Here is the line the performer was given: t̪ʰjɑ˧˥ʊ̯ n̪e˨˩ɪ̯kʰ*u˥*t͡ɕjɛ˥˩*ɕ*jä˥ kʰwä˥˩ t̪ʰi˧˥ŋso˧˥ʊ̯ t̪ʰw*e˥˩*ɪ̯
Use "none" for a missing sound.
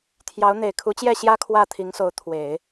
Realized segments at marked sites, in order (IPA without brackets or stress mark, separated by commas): u˧˥, ɕ, e˨˩˦